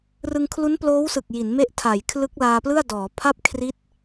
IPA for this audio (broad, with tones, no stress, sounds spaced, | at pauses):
r ɯ˧ ŋ kʰ l u˦˥ n p l oː˦˥ w s ɯ˨˩ k̚ j i˩˦ n m e˦˥ ʔ tʰ a˩˦ j kʰ l ɯ˦˥ k̚ l aː˧ p l ɯ˥˩ a̯ d ɔː˩˦ pʰ a˥˩ p̚ kʰ r i˦˥ t̚